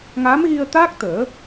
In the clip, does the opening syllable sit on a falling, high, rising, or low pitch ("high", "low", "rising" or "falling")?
rising